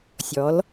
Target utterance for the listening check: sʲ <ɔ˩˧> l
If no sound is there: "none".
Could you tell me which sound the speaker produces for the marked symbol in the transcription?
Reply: ɔ˩˧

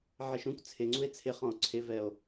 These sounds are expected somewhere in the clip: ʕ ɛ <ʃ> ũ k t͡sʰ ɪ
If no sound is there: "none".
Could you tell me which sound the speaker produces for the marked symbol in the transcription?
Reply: ʃ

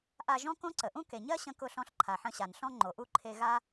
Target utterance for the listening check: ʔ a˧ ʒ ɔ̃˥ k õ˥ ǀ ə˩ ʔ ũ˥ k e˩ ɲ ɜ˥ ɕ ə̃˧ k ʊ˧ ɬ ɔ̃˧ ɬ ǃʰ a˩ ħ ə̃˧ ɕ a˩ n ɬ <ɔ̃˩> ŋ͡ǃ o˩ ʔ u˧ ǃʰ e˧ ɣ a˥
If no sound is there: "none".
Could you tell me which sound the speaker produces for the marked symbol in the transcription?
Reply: ɔ̃˥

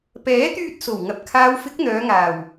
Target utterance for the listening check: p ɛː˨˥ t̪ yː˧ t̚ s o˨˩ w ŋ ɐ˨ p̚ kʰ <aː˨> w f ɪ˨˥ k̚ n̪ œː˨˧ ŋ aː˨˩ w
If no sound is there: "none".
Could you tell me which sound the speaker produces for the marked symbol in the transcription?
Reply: aː˨˧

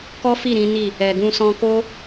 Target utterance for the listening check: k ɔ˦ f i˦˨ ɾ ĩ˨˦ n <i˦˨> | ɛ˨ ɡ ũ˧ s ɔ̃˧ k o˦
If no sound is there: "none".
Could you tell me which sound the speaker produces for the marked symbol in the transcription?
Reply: i˦˨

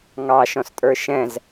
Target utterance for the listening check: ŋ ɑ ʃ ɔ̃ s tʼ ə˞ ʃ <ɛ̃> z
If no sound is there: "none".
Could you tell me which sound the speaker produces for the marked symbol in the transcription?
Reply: ɛ̃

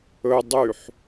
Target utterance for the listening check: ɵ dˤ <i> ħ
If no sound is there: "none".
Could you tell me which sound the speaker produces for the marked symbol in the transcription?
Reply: y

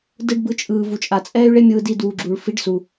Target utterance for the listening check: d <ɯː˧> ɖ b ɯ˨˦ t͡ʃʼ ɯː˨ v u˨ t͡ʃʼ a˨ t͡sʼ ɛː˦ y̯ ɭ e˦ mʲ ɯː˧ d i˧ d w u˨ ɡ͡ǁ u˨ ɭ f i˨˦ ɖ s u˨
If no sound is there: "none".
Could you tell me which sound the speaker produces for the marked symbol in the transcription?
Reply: ɯ˧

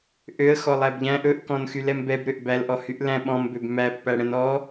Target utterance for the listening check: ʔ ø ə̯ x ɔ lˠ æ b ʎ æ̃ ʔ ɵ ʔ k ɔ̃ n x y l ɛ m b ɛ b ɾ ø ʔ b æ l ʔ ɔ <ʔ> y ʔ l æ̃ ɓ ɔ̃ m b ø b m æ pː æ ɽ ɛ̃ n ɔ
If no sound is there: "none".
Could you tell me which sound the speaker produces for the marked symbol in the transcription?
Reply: h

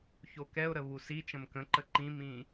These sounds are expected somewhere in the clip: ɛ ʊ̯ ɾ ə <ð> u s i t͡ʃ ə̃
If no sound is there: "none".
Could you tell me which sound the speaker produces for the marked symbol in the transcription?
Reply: β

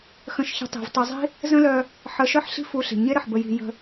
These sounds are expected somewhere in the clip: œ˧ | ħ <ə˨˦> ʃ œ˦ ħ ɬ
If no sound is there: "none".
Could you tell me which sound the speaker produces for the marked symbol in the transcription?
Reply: ə˨˦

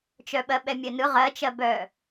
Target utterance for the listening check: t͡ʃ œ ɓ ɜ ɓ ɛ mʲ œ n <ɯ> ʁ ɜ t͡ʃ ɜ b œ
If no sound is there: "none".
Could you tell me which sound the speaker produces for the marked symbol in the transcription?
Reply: ɯ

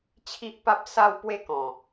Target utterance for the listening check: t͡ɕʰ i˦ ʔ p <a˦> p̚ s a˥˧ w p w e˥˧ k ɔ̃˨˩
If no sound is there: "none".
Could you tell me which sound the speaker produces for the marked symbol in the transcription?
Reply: a˦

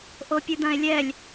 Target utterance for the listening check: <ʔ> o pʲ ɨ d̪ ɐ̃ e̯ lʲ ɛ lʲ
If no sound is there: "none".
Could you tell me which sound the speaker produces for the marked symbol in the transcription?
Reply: ʔ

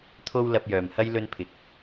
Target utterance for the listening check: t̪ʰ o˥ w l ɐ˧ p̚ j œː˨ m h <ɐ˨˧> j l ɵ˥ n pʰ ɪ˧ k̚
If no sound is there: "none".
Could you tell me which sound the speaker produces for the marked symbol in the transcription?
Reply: ɐ˥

